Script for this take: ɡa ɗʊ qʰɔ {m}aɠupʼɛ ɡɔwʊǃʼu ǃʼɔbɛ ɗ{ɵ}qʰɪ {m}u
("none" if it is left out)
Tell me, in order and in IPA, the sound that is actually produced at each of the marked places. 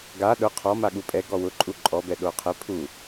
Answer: m, o, pʰ

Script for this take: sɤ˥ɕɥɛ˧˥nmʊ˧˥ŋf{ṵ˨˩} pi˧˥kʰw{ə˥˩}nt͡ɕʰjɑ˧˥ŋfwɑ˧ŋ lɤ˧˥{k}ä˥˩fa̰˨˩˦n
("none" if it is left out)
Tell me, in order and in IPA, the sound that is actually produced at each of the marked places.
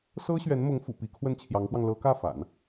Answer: ṵ˨˩, ə˥˩, k

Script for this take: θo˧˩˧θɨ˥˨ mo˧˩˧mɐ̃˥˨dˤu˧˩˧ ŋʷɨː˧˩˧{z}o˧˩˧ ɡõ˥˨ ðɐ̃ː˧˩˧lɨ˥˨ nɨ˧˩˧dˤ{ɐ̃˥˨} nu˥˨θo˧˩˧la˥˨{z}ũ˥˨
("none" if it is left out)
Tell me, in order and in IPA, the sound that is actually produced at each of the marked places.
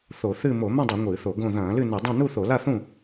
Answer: θ, ɐ̃˥˨, θ

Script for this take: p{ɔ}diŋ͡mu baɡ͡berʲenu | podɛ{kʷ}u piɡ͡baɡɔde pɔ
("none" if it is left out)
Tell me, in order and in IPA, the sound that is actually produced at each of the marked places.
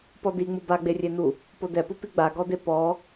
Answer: ɔ, p

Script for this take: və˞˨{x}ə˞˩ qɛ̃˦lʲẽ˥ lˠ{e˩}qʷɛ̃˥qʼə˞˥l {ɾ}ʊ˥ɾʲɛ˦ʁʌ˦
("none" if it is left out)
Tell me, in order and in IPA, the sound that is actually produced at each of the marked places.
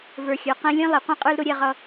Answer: xʲ, e˩, ɾ

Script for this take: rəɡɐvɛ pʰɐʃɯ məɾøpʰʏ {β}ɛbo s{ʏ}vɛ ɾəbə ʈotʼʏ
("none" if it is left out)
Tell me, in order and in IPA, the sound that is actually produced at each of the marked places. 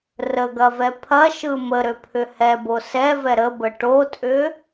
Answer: h, ɛ

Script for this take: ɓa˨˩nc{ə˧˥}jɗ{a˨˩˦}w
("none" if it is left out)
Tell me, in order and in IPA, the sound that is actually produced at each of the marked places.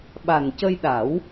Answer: ə˧, a˨˩˦

